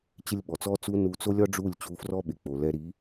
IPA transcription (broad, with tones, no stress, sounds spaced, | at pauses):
t͡ɕ ɪ˦ lʲ ɓ ɔ˨ t͡s ɔ˦ t͡s u˦ n u˧ t͡s o˦ lʲ ɒ˦ ɖ͡ʐ u˦˨ lʲ t͡ɕ u˧ f r ɔ˦ ɓ ɪ˨ k͡p o˨ l ɛ˧ ɾ i˨˦